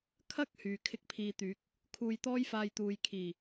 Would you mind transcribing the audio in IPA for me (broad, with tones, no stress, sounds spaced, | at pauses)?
kʰ ɐ˥ k̚ h yː˨ kʰ ɪ˥ k̚ pʰ iː˧ t̪ yː˨˥ k̚ | kʰ uː˧ j t̪ ɔː˥ j f aː˧ j t̪ uː˨ j kʰ iː˨˩